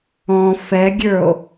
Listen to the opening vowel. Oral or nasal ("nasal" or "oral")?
nasal